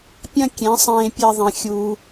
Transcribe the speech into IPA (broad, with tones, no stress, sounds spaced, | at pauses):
pʲ ɐ̃˦ kʲ ẽ˨˦ sˤ ẽː˧ pʲ e˧ ðˤ ẽ˧ xʲ uː˧